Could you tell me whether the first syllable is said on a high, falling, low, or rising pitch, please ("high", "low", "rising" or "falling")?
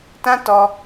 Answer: high